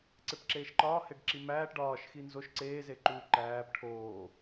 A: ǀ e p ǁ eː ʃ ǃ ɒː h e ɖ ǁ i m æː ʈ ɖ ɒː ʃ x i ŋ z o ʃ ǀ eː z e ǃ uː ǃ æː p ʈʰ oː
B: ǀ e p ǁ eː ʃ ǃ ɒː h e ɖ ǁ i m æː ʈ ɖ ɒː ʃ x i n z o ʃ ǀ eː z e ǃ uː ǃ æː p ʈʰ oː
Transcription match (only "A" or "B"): B